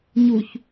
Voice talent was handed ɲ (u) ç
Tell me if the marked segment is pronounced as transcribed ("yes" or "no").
yes